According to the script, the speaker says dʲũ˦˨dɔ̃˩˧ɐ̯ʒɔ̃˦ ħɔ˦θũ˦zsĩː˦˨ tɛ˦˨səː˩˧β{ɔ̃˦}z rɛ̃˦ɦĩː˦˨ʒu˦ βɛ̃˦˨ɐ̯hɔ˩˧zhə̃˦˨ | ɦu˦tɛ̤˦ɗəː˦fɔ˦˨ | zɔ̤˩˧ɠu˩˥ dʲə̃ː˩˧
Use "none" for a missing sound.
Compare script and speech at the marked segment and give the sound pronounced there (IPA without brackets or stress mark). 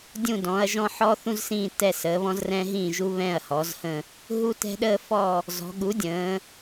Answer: ɔ̃˦